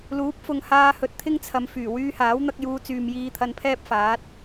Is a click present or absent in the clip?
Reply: absent